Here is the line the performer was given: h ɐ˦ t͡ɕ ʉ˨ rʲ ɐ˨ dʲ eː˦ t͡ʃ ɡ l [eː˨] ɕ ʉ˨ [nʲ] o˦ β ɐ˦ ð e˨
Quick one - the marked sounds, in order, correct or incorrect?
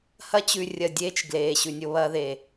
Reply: correct, correct

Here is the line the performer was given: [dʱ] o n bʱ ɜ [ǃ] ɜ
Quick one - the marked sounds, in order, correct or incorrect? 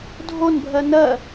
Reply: correct, incorrect

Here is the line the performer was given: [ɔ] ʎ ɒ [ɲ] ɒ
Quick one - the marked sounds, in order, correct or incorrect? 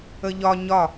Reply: incorrect, correct

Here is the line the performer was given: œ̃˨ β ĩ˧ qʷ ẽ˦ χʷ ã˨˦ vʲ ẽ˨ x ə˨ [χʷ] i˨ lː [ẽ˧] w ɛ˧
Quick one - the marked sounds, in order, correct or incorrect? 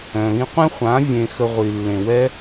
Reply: incorrect, incorrect

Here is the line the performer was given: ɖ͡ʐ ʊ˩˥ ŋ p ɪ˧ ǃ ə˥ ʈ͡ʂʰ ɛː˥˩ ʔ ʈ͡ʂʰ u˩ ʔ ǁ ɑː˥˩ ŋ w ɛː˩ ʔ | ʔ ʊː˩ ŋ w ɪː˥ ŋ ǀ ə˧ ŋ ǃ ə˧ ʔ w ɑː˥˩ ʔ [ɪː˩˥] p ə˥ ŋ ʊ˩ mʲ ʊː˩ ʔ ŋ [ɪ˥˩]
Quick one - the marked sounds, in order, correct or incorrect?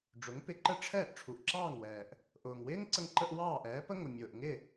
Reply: incorrect, correct

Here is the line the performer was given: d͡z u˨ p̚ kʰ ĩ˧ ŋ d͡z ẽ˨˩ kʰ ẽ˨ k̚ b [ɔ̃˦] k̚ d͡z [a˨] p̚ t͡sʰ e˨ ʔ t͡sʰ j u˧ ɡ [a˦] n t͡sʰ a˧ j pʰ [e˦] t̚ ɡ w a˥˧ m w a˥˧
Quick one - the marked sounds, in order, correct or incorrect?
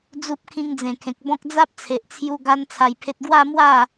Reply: correct, incorrect, correct, correct

